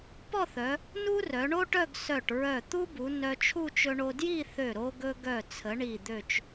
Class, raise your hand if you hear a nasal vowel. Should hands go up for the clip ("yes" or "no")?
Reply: no